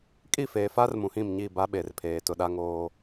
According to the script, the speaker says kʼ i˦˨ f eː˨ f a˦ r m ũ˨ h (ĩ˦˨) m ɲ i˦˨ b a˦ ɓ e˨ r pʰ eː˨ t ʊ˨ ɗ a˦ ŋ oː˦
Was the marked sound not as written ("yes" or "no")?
no